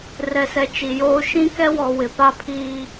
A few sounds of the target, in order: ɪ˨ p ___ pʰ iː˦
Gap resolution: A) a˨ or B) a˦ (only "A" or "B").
B